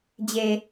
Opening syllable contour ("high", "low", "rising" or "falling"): low